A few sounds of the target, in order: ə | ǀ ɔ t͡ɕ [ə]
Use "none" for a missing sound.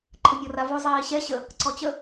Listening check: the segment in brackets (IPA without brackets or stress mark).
ə